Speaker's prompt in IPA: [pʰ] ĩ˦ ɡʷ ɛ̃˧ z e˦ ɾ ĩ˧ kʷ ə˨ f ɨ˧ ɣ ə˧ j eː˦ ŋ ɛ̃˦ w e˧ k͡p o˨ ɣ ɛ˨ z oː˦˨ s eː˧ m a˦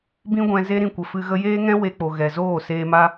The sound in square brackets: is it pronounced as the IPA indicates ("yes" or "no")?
no